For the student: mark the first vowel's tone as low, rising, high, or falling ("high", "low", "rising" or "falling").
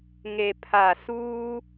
low